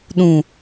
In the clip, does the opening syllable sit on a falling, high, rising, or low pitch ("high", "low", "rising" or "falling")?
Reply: low